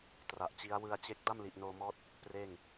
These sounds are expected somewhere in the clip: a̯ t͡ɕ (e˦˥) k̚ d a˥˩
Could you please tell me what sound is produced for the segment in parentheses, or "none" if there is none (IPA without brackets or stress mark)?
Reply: e˦˥